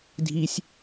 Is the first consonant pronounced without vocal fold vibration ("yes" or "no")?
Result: no